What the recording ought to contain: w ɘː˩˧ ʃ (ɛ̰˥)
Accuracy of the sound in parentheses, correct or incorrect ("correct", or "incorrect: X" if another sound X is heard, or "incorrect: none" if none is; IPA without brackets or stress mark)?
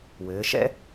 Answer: correct